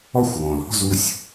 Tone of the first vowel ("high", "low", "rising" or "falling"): falling